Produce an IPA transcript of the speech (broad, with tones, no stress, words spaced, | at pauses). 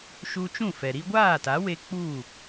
ʃu˧t͡ʃũ˦˨fɛ˨ ɾi˧ɡʷaː˦˨ta˨˦we˧ k͡pu˦˨